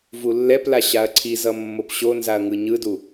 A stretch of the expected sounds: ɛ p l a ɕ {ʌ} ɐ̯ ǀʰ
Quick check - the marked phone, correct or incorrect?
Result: incorrect